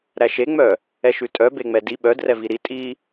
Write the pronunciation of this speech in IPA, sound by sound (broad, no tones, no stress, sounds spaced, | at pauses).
ɾ æ ʃ e ŋ͡m œ | ɛ ʃ ʉ tʼ œ b e ŋ͡m ɛ d i ɓ œ d r ɛ v i ɾ i tʼ i